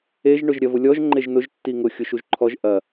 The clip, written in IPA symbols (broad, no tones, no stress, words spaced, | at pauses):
eʒ ɳʊʒɾʲɐvʊlʲɔʒ ŋ͡ǃeʒnʊʒ tːiŋʊ xʲʊʃuʒǃʰɔʒ ʔɐ